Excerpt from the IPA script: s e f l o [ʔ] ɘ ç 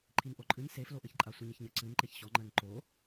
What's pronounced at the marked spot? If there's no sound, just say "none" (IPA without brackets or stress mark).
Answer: ʔ